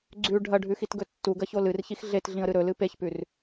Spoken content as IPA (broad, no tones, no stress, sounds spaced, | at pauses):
ɡ͡ǀ ʉ ɖʱ ɐ ɖʱ ʉ x i t ɡ ɵ tː u ɡ ɐ ç o l ɨ r ç i x ɮ e t ɮ ĩ ə̯ ɾ ɨ ɾ ɵ l ɨ p e ç p ʉ r